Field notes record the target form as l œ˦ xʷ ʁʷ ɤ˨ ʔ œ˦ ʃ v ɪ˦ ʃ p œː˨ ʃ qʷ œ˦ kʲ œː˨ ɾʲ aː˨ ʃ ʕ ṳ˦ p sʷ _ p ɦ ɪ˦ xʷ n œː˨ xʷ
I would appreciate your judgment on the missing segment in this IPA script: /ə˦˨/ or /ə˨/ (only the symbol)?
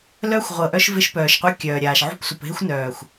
ə˨